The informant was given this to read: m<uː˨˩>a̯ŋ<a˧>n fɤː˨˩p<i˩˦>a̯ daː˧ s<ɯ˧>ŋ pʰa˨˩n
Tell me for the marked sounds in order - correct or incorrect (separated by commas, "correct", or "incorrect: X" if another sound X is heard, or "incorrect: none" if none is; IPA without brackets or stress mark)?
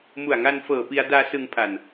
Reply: incorrect: u˨˩, correct, incorrect: i˧, correct